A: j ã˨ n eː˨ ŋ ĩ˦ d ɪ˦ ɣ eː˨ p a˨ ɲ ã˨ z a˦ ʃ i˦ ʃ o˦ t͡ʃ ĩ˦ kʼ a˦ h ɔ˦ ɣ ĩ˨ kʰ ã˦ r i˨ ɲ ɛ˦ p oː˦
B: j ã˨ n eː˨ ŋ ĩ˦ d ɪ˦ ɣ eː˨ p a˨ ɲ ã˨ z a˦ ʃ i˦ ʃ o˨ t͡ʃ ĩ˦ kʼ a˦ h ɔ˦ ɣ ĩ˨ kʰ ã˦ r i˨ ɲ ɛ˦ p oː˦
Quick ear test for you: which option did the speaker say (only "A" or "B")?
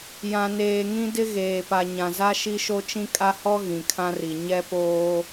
A